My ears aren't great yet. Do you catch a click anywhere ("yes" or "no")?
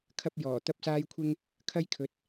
no